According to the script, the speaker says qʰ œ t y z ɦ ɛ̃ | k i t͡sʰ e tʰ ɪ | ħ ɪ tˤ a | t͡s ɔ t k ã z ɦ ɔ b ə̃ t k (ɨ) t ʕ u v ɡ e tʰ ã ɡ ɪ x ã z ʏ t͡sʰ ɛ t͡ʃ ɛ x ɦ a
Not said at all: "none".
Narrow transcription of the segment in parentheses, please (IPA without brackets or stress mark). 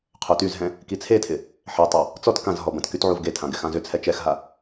y